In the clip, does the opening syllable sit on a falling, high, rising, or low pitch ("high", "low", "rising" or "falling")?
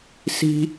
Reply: high